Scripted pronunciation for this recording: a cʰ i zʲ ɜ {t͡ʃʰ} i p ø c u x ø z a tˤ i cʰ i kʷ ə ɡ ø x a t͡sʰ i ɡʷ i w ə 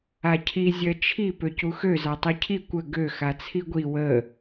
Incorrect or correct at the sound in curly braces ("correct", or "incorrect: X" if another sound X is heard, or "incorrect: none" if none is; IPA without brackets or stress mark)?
correct